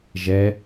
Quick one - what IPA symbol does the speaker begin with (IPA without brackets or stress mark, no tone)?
ʒ